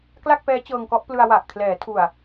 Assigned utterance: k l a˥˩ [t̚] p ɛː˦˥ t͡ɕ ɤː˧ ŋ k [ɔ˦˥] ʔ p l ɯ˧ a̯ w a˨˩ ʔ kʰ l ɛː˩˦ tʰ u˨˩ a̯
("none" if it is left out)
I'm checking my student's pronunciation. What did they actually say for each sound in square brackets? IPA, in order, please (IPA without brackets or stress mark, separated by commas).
k̚, ɔ˦˥